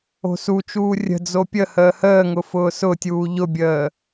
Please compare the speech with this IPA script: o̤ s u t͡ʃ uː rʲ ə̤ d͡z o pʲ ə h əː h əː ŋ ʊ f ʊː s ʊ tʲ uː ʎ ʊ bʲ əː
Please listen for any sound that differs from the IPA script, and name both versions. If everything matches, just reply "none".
none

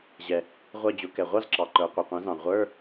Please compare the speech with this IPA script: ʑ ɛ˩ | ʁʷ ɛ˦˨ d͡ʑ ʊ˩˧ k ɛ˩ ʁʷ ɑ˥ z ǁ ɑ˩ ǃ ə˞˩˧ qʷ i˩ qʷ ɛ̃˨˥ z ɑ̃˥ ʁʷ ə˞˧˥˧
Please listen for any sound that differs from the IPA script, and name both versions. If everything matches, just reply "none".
ɑ̃˥ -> ɑ̃˩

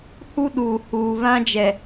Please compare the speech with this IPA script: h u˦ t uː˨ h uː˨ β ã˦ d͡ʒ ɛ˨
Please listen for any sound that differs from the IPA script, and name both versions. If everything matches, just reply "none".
t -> ɗ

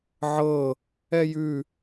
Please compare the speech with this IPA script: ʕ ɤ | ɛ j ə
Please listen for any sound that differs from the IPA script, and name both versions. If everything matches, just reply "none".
ə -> ʉ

